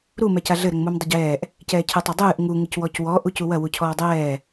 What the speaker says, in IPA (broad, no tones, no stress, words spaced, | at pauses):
ɾu mɛcaɮɘ ɾɘŋmumdˤɘɟɛːʔ | cɛːcʰɨtˤɐdˤɨːʔ ŋu ŋɨcwɔcwɔ ʔucuwɐ wucʰɔːdˤɛː